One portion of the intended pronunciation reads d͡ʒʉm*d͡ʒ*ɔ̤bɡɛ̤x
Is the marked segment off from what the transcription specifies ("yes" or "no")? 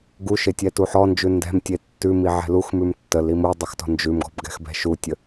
yes